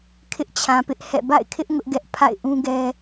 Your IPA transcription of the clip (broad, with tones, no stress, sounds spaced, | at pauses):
kʰ ɪ˦ ʔ t͡ɕʰ ã˨ p ɪ˦ ʔ h ɛ̰˦˨ b a̰˦˨ ɪ̯ kʰ ɪ˦ ʔ ŋ ʊ˦ ʔ ɡ ɛ˦ ʔ pʰ a̰˦˨ ɪ̯ ʔ ũ˦ ɡ ɛ˦